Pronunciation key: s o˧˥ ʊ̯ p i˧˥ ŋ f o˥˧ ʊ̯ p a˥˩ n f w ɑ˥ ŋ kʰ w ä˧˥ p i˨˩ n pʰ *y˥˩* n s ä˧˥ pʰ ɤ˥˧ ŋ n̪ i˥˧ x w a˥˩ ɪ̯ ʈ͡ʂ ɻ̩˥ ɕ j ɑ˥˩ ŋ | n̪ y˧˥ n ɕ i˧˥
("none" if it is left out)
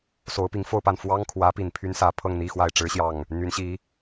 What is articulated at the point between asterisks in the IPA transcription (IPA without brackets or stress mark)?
y˥